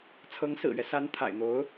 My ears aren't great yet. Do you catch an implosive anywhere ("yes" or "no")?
no